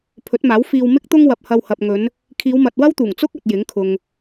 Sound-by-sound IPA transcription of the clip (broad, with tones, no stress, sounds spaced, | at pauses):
pʰ ɵ˨˥ t̚ m aː˨˥ w f iː˧ w m ɪ˥ k̚ t̪ ʊ˥ ŋ w ɐ˨ p̚ h ɐ˧ w h ɐ˨ p̚ ŋ ɵ˨˧ n | kʰ iː˨˧ w m ɐ˨ t̚ w ɐ˥ w t̪ uː˨˩ ŋ t͡s ʊ˥ k̚ ɐ˨ t̚ j ɪ˨˥ ŋ kʰ ʊ˨ ŋ